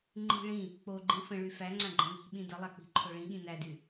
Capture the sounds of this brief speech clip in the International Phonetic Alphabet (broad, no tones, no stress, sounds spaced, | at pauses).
ŋ͡ǃ i̤ ɭ ĩ | k͡p o ɡ͡ǃ ĩ f ə̃ ɭ y f æ ŋ͡ǀ ã ɡ͡ǃ ə̃ n i̤ ɓ ĩ d ə lˠ a k͡p i̤ ǃʰ o ɭ ĩ ɠ ĩ n æ d y